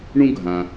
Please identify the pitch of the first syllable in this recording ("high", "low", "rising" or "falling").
high